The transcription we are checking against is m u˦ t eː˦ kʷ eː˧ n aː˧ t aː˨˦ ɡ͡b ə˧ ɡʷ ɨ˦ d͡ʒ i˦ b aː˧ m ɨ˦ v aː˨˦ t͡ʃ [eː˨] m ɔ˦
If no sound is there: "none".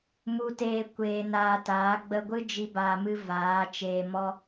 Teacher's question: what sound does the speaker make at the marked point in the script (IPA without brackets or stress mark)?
eː˧